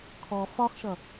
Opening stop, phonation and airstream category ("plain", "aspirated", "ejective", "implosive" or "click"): aspirated